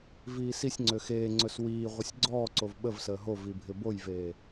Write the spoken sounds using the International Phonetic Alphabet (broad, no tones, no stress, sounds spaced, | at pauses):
v iː s i sʲ ŋ͡ǀ ø x eː ŋ͡ǀ ɵ s w iː ʁʷ ə sʲ ɡ͡ǀ ɔː ǀ o v ɓ ə v s əː ɦ o v i bʱ ɪ b o j v eː